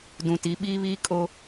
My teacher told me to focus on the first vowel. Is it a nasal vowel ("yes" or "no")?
yes